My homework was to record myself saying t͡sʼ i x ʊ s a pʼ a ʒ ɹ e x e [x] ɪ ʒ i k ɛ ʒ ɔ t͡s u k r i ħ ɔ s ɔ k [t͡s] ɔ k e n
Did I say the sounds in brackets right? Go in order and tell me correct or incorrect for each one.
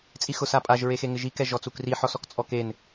incorrect: ŋ, incorrect: t͡sʼ

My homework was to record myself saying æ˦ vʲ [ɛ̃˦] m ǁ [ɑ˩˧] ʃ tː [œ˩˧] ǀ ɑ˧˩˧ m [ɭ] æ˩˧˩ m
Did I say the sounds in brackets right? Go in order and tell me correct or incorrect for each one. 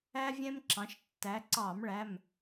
correct, incorrect: ɑ̃˩˧, incorrect: æ˩˧, correct

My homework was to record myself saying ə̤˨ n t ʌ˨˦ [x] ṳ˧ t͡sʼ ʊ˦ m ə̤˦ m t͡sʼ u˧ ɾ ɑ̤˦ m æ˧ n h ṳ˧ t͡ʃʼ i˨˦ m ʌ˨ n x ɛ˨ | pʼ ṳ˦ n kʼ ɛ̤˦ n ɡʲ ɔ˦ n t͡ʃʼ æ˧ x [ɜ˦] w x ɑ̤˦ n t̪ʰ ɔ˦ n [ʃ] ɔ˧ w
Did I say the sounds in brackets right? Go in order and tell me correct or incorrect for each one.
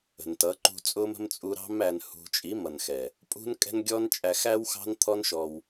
incorrect: ǃ, incorrect: æ˦, correct

